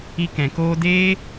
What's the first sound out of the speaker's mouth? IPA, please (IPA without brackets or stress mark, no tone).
i